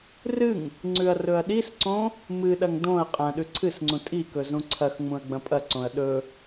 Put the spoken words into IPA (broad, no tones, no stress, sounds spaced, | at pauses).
r ɨ ŋ | ŋ͡ǀ ʉ ɐ̯ r ɵ ɐ̯ ɗ i s ǀ õ | m ɨ ɗ ɐ ŋ d õ ɐ̯ qʼ ɐ̃ ɗ ʉ ǀʰ ɨ s ŋ͡ǀ ũ tʼ i k ɵ z ũ ǀʰ ɐ x ŋ͡m ũ ɐ̯ ɡ͡b ɐ̃ pʼ ɐ ǀ õ ɐ̯ ɗ ɵ